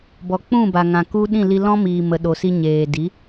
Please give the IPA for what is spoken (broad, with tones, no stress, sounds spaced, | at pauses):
b ɔ˨ k͡p ũ˦˨ b a˨ ŋ ã˨ k u˦ ɗ ĩ˦˨ l i˧ l ɔ̃˦ m iː˨ m ə˨ ɗ o˨ s i˧ ɲ eː˨ d i˨˦